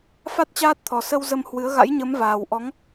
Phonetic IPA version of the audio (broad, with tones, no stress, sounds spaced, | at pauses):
f a˦˥ t̚ t͡ɕ aː˦˥ t̚ t̪ʰ ɔ˨˩ s ə˧ w z ə˧ m h w ɨ˨˦ ə̯ ɣ a̰˧˥ j ɲ ə˨˦ m v aː˨˩ w ʔ ɔ˨˦ ŋ